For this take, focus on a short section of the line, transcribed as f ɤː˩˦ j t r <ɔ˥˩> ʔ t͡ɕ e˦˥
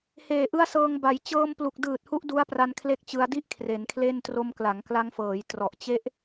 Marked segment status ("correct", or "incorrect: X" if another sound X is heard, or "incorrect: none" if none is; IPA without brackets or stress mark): incorrect: ɔ˨˩